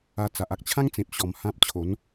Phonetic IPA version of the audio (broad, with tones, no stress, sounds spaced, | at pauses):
a˧ t͡s a˨ ʔ a˦ k̚ t͡ɕʰ ã˦ ŋ t͡s ẽ˨ p̚ ɕ ɔ˧ m h ã˦ p̚ t͡ɕʰ o˨˦ n